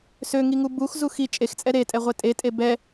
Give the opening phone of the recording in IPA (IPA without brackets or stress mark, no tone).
s